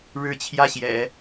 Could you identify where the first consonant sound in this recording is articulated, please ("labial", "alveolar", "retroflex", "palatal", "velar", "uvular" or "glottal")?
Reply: retroflex